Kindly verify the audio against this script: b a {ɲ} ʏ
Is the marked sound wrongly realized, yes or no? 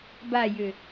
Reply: yes